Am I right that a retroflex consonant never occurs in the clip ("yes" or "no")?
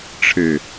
no